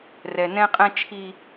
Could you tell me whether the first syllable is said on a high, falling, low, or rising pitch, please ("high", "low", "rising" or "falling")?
low